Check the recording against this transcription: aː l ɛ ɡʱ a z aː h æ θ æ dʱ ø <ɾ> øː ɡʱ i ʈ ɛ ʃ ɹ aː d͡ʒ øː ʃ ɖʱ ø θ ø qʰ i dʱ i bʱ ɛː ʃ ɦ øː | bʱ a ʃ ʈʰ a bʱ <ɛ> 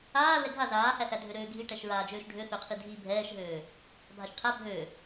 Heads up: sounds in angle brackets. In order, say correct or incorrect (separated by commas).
correct, incorrect